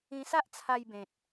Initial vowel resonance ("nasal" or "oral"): nasal